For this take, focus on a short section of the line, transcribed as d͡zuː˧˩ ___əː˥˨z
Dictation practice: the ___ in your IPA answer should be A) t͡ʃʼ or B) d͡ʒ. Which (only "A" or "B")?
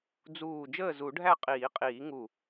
B